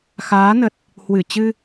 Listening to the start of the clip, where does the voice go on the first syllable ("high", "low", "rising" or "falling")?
rising